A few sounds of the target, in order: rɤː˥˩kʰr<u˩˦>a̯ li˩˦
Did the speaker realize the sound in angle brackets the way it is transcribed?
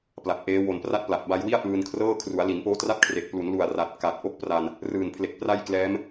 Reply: yes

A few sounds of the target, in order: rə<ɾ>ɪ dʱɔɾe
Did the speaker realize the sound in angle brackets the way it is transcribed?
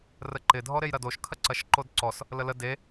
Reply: no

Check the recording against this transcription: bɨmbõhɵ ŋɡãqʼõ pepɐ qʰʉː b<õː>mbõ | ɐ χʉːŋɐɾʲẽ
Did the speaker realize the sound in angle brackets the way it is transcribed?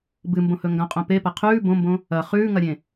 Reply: no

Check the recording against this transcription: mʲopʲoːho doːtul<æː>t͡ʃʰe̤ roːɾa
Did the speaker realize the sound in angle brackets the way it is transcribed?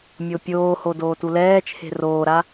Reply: no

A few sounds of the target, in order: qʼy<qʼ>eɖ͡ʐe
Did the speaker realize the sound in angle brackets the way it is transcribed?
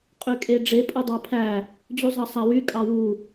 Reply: no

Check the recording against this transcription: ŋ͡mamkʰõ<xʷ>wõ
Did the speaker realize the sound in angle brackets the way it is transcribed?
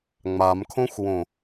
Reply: yes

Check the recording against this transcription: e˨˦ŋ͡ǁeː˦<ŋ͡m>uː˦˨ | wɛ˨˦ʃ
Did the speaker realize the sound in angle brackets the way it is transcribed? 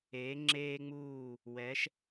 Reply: yes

